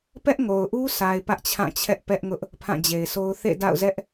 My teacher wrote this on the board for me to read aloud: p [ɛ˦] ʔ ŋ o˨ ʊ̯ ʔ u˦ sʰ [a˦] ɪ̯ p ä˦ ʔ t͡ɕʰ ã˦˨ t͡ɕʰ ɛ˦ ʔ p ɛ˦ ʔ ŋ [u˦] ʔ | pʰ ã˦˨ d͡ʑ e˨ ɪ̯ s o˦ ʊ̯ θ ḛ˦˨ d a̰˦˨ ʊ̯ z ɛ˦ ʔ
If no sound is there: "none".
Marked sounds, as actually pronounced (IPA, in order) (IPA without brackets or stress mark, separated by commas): ɛ˦, a˨, ʊ˦